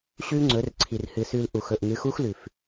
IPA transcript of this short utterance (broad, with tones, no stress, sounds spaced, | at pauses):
ɕ ʉ˦ ŋ͡ǀ ɵ˨˦ r ǀʰ i˨ r h ɨ˨ s ʉ˧ l ʔ u˨ x ɵ˨ ʔ ŋ ɨ˨˦ x u˦ x l ʉ˨ f